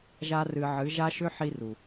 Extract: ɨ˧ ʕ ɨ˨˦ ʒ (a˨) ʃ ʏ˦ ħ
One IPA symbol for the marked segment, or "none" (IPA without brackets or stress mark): a˦